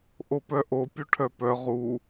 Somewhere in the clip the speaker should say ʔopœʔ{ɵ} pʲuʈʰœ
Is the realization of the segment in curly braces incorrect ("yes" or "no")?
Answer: yes